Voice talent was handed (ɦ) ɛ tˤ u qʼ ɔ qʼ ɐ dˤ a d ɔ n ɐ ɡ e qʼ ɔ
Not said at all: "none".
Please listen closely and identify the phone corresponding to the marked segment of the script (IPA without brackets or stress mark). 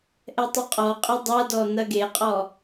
ʔ